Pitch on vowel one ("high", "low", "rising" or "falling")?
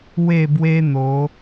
falling